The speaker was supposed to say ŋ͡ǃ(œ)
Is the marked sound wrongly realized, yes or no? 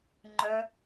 no